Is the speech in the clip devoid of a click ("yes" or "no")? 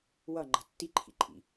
no